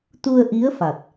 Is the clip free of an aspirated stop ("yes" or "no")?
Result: yes